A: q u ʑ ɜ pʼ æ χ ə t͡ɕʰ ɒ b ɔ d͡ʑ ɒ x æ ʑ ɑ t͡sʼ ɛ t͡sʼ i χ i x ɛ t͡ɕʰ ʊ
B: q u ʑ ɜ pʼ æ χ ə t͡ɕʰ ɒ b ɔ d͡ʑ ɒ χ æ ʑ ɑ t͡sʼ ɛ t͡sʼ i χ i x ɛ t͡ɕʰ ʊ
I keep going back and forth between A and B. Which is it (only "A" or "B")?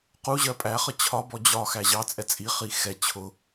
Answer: A